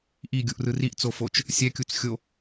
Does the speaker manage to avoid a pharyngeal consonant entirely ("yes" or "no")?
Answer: yes